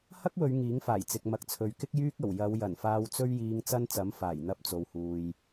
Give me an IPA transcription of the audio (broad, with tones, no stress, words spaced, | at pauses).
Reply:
hɐ˥k̚wɵ˨˧ɥ ŋiː˨˥ŋfaː˨˩j t͡sɪ˨k̚mɐ˨˥k̚t͡sʰɵ˨ɥkɪ˥k̚ jyː˥k̚ɐ˨˩w jɐ˨˧wjɐ˨˩n faː˧wt͡sɵ˥ɥjiː˧ŋ t͡sɐ˥nt͡sɐ˨˥m faː˨˩jn̪ɐ˧p̚ t͡so˨whuː˨j